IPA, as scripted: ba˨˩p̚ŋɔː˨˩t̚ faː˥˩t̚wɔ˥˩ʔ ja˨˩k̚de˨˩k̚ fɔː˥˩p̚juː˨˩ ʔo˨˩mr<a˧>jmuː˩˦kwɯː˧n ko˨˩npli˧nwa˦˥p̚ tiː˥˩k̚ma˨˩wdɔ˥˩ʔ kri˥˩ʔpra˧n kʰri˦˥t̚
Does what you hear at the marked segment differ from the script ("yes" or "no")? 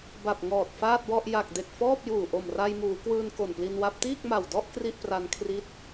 no